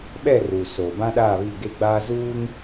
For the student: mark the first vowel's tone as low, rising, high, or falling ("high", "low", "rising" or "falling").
falling